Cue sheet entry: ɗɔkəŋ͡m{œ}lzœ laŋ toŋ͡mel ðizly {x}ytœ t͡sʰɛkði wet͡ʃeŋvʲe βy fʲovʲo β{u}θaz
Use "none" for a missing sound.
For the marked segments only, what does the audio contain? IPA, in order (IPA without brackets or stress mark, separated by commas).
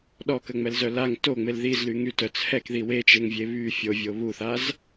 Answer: ɛ, ŋ, u